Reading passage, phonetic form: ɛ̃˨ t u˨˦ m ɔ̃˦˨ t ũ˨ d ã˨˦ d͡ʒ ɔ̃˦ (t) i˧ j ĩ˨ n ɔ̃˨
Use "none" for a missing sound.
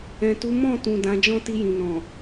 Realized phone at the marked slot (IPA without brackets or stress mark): t